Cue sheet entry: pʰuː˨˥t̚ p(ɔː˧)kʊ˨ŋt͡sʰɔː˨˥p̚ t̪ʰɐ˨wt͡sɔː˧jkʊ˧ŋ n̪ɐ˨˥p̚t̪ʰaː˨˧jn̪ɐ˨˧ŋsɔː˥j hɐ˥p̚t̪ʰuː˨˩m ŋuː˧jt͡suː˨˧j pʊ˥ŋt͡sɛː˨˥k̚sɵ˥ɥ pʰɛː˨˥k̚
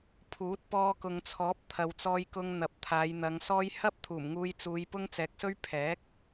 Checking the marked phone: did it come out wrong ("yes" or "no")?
no